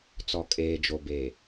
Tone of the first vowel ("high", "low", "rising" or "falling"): low